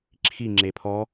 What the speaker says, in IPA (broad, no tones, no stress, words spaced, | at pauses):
ǁʰi ŋ͡ǁepʰɔ